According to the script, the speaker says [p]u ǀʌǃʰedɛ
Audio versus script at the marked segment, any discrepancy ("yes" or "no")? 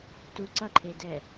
yes